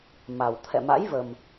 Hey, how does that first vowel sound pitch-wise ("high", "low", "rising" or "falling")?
low